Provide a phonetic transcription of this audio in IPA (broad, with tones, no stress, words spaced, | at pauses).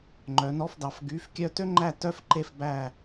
ŋ͡ǃœ˨˦nɔ˧˥˧fdɑ˨˦f ɡy˧˥˧fkʲœ˥ tø˥ŋ͡ǃæ˥˧ tœ˥fǃe˥˧fbæ˥˧